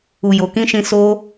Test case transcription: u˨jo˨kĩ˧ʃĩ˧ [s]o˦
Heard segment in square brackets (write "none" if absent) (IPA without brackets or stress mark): s